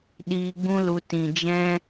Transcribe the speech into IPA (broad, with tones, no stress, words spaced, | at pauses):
ɗiː˧ɡ͡bũ˦lu˧ tĩ˨d͡ʒɛ̃˦